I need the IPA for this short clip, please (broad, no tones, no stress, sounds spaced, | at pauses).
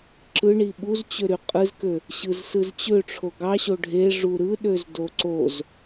ǁ ɯ ɳ i ɓ u z t͡ɕ ø ɾ y qʼ ɯ z k ø | ɕ ɯ z s ɯ z t͡ɕ ø ʈ͡ʂʰ o ɡ ɑ ɕ o ɖʱ e ʐ u ɾ ɯ ɗ ø z d o ǀ o z